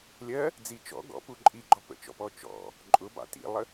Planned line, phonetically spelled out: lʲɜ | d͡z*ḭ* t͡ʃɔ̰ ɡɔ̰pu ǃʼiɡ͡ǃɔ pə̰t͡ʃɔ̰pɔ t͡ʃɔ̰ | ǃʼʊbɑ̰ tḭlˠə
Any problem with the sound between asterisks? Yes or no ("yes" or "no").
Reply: yes